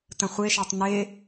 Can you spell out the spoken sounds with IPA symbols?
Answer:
t ə̃ χʷ e ʃ a tˤ n e

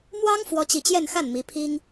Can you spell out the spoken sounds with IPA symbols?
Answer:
m w ɑ˥ ŋ f w ɔ˥ t͡ɕ i˥˧ t͡ɕ j ɛ˥˧ n x a˥˩ n m i˧˥ pʰ i˥ ŋ

